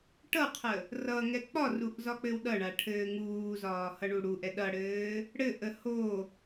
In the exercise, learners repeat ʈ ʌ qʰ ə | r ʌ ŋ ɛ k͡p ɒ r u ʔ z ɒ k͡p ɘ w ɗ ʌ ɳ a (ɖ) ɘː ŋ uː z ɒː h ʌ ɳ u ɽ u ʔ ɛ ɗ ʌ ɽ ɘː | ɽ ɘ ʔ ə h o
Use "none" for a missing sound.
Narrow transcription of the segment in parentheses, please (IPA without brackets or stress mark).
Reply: ʈʰ